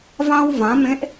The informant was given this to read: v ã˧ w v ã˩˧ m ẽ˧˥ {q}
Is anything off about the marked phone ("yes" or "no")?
yes